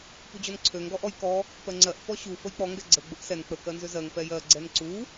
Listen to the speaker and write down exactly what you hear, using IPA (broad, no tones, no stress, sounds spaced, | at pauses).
p u d͡ʑ ɔ n ǀʰ ø ŋ ɡ ɔ ʔ ɔ j k ɔ | p ɜ ŋ͡ǀ ɜ ʔ f ɔ ɕ u f ə j k͡p ɔ ŋ ɡ ɛ ɡ͡ǀ ə ɡ͡b ʊ ʔ s ɛ n k͡p ə k ɜ n z ʏ z ɜ ŋ p ɛ j ɜ ɡ͡ǀ ɛ n ǀ u